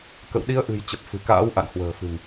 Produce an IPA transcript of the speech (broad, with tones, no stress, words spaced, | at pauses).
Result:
kə̰˧˨w ɗi˨˦ə̯ʔɨ̤˨˩j t͡ɕə˨˩p̚fɨ̤˨˩ka̰ː˧˥w ʔa̰˧˨nhwə̤ː˨˩fɨ̤˨˩ŋ